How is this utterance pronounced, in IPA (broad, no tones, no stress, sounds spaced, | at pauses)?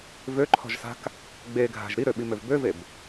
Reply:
v ø ǃʰ ɔ̤ ʒ s a̤ k | ɡ͡b e ɡʱ a̤ ʒ ɾ i ɾ ø ɓ i m ø v b ø v e b